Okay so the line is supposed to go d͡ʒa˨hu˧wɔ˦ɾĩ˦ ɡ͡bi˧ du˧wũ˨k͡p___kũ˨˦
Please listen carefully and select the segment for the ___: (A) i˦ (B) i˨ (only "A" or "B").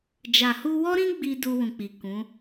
B